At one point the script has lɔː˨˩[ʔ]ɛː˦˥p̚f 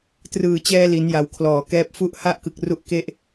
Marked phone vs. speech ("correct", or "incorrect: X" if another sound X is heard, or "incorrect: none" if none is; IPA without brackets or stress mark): incorrect: k